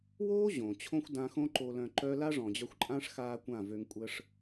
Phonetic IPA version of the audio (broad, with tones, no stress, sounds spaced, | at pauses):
w oː˦ ʑ õ˨ t͡ɕʰ õ˦ xʷ d ã˧ x õ˦ ǃ o˧ l œ̃˧ ǃ œ˦ l a˦ ʐ ɔ̃˨ d͡ʑ œ˧ xʷ ǃʼ ã˦ ʂ x aː˦ kʷ ã˦˨ v ø˧ ŋ kʷʼ ə˧ ʂ